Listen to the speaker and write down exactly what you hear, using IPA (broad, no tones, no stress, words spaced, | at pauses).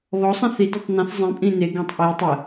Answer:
βɔsˤə̃ θi detˤnɐ̃θ zˤĩpʼĩ neɡẽtˤ ʔi tˤə